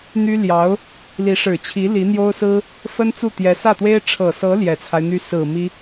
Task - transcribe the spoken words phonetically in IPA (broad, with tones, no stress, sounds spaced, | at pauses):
n̪ y˥ l j ɑ˧˥ ʊ̯ | l i˧˥ ʂ ɻ̩˨˩ t͡ɕʰ i˧˥ l i˧˥ n̪ j o˥ ʊ̯ s ɹ̩˥ | f ə˥ n t͡s u˥˩ t̪ j ɛ˧˥ s ä˥˩ t̪ w e˥ ɪ̯ ʈ͡ʂʰ ɤ˨˩ s ɤ˧˥ l j ɛ˨˩ t͡sʰ a˦ ɪ̯ n̪ y˥ s ɹ̩˨˩ m i˥